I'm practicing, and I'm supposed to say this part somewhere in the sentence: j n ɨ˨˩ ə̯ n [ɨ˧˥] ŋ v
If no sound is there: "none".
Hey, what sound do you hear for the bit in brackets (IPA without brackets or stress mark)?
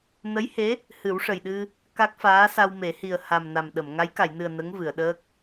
ə˧˥